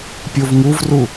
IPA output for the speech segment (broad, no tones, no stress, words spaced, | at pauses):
pʲovŋuvru